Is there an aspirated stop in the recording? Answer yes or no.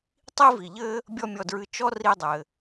no